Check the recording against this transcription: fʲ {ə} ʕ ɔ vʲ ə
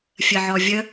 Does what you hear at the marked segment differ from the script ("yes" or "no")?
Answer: no